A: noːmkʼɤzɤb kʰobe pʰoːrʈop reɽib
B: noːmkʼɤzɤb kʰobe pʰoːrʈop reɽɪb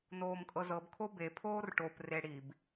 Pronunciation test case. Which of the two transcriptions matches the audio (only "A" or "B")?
A